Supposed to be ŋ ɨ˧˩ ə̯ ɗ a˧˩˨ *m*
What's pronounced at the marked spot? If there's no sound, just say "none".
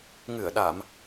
m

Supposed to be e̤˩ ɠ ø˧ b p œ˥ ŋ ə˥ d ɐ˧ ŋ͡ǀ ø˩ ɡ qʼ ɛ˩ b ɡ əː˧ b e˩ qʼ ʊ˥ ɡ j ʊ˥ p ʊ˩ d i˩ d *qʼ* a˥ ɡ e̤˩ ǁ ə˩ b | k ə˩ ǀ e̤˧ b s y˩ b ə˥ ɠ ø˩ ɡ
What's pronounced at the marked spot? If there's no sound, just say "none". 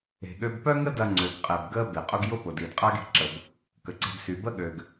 qʼ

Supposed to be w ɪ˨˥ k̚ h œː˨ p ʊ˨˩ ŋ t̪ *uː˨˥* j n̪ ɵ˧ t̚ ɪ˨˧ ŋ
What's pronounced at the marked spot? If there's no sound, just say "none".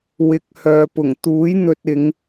uː˨˥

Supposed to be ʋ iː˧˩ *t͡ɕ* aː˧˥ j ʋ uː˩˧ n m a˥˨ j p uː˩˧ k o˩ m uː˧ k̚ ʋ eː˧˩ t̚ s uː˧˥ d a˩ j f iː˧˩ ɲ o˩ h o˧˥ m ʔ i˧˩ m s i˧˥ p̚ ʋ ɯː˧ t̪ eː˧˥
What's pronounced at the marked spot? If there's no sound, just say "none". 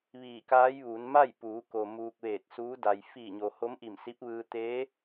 k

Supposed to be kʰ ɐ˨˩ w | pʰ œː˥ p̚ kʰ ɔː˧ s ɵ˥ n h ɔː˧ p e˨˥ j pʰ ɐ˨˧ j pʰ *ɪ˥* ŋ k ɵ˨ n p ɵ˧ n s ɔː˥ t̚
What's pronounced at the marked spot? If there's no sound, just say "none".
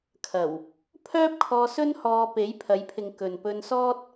ɪ˨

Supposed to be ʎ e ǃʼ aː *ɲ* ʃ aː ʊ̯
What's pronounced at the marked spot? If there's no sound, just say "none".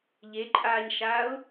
ɲ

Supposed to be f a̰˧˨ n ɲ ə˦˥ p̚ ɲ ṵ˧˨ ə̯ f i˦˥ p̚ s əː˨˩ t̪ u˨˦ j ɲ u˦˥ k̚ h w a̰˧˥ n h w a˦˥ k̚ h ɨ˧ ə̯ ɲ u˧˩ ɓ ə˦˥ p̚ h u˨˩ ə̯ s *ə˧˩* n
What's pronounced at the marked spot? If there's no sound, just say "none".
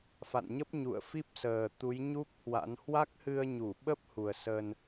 ə˧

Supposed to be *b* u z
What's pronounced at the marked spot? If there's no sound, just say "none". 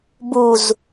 b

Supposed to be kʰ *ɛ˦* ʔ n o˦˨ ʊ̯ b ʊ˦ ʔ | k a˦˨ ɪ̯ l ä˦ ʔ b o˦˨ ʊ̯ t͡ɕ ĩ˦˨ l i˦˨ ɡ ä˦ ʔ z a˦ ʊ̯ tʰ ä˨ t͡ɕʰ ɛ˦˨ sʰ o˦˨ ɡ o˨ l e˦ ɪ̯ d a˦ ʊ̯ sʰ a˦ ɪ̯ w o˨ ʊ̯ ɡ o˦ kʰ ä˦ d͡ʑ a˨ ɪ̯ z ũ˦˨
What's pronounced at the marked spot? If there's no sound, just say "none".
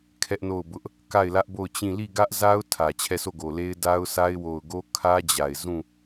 ɛ˦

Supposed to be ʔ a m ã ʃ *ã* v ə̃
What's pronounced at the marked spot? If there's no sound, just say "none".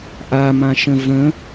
ə̃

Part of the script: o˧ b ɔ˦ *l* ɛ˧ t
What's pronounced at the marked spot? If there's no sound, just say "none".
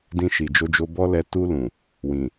l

